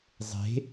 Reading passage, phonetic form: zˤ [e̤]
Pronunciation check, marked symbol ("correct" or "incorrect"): correct